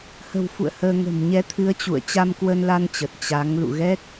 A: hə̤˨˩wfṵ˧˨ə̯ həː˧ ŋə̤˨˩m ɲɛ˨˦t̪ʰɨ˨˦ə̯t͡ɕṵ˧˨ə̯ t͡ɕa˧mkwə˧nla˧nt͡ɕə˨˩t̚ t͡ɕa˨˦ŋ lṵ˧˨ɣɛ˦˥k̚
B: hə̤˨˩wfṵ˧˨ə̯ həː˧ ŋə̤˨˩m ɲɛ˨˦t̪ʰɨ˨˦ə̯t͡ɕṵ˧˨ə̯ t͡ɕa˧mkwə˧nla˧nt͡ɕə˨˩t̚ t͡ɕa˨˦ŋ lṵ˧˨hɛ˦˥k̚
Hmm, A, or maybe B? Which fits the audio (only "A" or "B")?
A